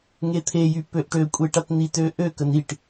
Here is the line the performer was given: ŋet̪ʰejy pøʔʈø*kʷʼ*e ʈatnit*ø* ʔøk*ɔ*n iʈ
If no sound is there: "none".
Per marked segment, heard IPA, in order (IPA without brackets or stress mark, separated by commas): kʷʼ, ø, ə